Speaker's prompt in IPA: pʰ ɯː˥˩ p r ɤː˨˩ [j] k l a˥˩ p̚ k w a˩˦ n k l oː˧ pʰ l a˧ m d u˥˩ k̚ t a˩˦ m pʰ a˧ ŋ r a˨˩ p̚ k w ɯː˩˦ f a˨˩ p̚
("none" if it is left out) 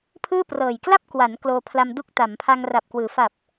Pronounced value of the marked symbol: j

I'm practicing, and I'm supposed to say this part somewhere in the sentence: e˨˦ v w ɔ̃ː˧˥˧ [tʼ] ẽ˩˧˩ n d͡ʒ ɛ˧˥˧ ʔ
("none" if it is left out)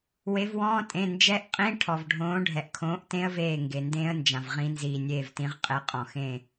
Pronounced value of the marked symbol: tʼ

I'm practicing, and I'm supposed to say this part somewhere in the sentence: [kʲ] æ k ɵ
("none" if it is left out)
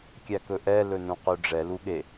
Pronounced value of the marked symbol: kʲ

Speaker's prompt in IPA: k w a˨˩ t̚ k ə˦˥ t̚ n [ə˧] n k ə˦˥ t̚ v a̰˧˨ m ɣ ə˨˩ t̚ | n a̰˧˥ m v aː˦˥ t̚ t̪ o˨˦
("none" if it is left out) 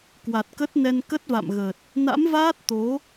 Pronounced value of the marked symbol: ɛ˧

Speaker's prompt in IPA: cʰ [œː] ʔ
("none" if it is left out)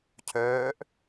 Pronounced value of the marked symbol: œː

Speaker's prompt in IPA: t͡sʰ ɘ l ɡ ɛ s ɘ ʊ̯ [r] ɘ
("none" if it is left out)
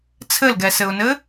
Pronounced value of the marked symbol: n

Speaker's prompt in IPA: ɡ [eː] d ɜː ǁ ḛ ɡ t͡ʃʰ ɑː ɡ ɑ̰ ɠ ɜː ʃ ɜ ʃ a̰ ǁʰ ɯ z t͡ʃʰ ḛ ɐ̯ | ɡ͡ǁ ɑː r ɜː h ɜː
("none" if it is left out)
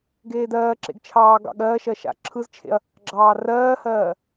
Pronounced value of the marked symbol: eː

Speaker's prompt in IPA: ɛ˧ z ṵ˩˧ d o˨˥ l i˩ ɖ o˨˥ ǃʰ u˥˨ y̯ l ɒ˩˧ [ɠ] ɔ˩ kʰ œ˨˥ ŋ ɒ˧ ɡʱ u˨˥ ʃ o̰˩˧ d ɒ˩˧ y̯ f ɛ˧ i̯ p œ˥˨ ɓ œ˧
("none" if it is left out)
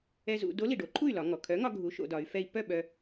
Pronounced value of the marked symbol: ŋ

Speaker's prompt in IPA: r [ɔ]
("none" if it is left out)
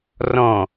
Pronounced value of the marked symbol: ɔ̃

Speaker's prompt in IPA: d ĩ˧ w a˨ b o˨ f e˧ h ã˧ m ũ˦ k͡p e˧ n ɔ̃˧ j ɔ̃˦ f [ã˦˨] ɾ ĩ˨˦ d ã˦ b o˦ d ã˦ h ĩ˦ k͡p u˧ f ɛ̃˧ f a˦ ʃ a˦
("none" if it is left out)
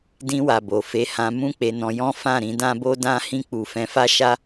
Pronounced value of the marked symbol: ã˦˨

